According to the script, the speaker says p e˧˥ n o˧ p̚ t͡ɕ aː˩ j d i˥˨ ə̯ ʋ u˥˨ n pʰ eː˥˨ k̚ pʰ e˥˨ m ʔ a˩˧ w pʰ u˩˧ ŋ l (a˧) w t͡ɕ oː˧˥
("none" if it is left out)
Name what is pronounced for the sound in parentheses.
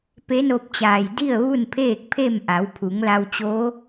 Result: a˧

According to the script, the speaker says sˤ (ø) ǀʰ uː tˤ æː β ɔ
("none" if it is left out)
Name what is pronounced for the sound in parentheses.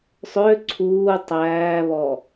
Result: ø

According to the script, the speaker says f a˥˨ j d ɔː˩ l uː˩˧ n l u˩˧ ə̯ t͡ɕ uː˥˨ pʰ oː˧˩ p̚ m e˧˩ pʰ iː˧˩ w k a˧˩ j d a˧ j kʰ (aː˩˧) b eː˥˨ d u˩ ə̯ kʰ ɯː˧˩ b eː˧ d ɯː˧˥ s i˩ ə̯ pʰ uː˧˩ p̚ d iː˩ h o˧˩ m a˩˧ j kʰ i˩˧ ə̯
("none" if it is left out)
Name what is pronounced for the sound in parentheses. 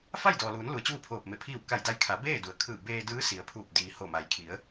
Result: a˩˧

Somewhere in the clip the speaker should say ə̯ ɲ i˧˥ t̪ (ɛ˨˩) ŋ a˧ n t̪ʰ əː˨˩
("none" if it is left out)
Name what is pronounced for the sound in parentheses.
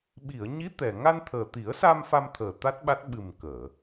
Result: ɛ˨˩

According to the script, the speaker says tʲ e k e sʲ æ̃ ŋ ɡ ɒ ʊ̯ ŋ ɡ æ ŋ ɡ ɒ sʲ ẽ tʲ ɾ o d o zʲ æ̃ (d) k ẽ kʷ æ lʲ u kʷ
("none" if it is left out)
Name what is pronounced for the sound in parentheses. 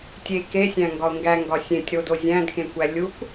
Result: d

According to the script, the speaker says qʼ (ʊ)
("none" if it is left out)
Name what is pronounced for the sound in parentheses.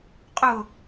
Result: ʊ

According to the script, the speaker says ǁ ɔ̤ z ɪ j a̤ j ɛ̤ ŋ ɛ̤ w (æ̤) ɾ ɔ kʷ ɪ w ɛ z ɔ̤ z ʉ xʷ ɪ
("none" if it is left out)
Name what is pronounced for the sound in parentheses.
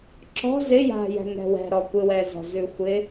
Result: ɛ̤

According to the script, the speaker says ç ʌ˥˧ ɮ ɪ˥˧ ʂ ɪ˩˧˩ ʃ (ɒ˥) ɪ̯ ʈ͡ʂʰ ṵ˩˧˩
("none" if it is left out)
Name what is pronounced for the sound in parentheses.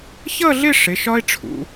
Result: ɒ˥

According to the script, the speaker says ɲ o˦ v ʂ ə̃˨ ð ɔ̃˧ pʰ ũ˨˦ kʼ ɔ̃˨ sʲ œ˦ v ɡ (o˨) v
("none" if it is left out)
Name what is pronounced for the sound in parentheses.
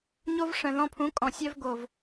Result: o˨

